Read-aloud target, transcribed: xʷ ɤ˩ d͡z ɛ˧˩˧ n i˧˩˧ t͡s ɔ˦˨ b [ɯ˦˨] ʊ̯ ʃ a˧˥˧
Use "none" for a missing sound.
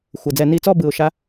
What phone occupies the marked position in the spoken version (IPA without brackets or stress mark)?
ɯ˧˩˧